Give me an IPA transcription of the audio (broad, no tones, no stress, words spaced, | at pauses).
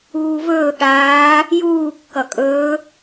uːvɵː ɠaː | juː kːʌkʼɵː